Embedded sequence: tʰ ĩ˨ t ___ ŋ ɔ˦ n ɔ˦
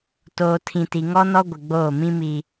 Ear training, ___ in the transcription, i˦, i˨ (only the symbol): i˨